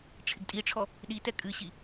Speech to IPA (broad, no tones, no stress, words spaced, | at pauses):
ʈ͡ʂʰɪɡtʼiʈ͡ʂʰɔ | ɗitɛ kʼɨɕi